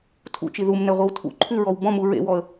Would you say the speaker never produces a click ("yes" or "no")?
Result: no